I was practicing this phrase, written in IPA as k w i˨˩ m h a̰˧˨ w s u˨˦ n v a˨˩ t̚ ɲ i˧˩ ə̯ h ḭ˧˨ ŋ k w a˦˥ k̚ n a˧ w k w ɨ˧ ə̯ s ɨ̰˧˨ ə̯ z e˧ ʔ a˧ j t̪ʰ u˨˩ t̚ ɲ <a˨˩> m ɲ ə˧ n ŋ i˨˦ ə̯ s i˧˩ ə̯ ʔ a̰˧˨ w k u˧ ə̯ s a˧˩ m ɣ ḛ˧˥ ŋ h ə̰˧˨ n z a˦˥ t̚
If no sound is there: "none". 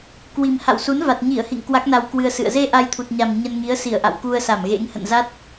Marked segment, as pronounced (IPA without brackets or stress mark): a˨˩